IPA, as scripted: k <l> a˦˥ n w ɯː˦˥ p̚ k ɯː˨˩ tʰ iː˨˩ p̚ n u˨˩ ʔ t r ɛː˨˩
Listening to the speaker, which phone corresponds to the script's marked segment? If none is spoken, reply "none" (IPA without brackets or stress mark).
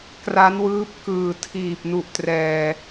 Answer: r